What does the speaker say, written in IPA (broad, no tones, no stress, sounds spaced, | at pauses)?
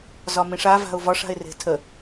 z ɒ m ĩ ʂ a v a̤ ʊ̯ v ɒ ʂ a̤ ɪ̯ r e̤ tʰ ə